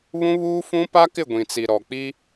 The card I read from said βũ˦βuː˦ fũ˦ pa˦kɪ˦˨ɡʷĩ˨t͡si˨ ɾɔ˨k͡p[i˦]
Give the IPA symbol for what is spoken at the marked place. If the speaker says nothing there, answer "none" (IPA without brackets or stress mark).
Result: i˦